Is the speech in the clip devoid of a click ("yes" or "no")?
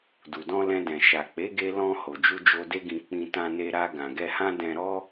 yes